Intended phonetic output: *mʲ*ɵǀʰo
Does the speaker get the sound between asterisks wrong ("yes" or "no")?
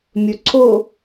no